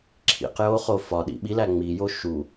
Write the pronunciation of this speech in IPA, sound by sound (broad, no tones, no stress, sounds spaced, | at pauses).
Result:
ǁʰ ḭ q j o χ o f ɒ ɗ ḭ ɓ i l æ ŋ͡m i j o ʃ u